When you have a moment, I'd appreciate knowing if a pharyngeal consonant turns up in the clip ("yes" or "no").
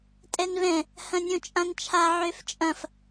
yes